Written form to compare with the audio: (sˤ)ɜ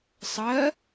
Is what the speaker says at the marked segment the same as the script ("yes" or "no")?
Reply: yes